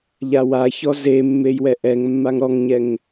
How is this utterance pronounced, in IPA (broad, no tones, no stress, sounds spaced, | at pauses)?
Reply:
ʎ a w a ç ɔ z e mː e j w ɛ ʔ ɛ ŋ mː a ŋ ɾ ɔ ŋ ɲ ɛ ŋ